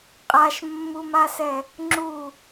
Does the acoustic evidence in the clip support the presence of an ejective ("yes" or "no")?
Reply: yes